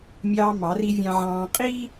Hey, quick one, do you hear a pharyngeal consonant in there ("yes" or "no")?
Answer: yes